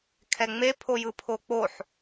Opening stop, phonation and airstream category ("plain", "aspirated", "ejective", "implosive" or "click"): aspirated